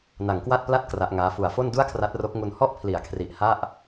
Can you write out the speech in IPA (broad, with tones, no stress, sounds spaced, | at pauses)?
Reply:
n a˨˩ ŋ k w a˥˩ t̚ p l a˥˩ t̚ k r a˦˥ ʔ ŋ aː˦˥ f u˨˩ a̯ f o˥˩ n d u˥˩ a̯ kʰ r a˦˥ t̚ r o˦˥ k̚ ŋ u˧ n h ɔ˥˩ ʔ pʰ l i˩˦ a̯ kʰ r i˨˩ ʔ h a˥˩ ʔ